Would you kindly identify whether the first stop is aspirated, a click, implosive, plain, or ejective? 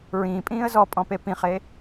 ejective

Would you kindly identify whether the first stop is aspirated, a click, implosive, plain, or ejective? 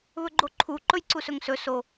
click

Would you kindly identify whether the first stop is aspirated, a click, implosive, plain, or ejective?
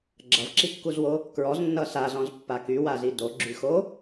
click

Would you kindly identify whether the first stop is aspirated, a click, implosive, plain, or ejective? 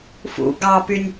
plain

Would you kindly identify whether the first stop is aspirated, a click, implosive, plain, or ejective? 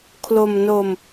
aspirated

